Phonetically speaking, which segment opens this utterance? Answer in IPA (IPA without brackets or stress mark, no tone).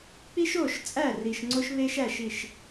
k͡p